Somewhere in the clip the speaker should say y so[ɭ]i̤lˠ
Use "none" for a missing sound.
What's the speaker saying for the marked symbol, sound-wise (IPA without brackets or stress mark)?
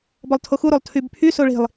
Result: ɭ